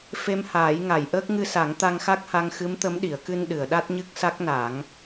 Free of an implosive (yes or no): no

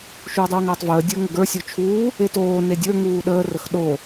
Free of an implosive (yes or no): no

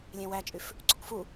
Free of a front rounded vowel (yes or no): no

